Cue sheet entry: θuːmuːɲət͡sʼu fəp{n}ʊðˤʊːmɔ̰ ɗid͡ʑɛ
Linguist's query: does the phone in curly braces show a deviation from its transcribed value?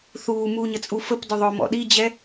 yes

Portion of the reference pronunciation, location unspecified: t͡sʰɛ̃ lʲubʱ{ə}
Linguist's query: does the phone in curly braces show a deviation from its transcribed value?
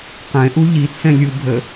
no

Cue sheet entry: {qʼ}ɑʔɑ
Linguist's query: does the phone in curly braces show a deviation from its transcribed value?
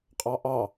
no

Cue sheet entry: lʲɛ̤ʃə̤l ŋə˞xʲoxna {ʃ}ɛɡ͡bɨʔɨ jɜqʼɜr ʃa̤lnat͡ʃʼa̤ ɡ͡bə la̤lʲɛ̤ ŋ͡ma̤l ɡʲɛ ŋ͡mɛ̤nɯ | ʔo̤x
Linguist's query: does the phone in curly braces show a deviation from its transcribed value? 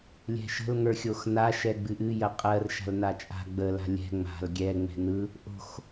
no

